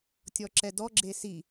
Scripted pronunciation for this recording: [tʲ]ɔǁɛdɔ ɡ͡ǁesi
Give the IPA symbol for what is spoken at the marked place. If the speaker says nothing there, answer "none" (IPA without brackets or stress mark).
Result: tʲ